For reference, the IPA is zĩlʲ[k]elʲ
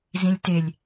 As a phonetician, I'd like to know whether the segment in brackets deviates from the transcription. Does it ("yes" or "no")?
yes